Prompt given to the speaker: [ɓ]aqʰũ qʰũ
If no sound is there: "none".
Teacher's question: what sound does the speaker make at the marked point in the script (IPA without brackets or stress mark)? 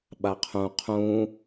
ɓ